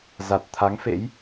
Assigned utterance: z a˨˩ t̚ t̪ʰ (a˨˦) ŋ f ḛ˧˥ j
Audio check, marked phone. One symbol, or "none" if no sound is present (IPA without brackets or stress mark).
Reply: a˨˦